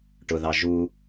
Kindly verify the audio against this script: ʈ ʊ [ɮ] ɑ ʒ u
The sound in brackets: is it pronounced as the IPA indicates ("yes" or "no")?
no